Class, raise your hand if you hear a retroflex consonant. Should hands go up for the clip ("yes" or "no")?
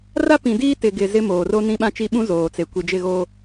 no